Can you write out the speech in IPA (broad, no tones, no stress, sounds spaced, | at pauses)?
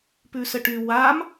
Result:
p ʉ s ə ʈ y w a m